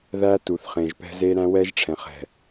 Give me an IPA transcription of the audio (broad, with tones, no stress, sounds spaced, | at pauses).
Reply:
ð æ˦ t u˨ θ χ ẽ˨ ʒ p ɛ̤˦ z e˦ ɾ æ̃˦ w ɛ˦ ʒ ʈ͡ʂʰ ɛ̃˨ χ ɛ̤˨